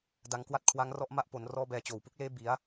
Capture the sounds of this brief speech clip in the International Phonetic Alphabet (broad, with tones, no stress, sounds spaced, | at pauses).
d a˩˦ ŋ k w a˦˥ t̚ kʰ w a˦˥ ŋ r ɔ˦˥ ʔ m a˥˩ ʔ p o˩˦ n r ɔː˦˥ b ɛː˧ t͡ɕ oː˨˩ w p u˦˥ k̚ l eː˦˥ b i˩˦ a̯